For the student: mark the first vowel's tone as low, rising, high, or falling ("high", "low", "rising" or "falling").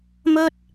high